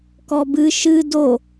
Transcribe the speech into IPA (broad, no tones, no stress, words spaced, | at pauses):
kɔbɨ ʃɨ do